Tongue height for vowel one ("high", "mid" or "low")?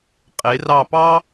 mid